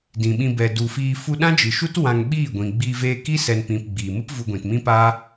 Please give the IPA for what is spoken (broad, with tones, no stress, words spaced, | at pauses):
dĩ˨ɓĩ˧bɛ˨ du˨fiː˧ fu˧ɗã˦d͡ʒɨ˨ʃu˦t wã˧ŋɓiː˦˨ɡʷĩ˨ ɡ͡biː˧veː˧ ki˦sɛ˨npĩ˨p ɡ͡biː˨mɨ˦p vu˧ɡʷĩ˨tmĩ˦ pa˦